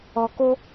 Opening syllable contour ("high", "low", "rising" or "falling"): low